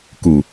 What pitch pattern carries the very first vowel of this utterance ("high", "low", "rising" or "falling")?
low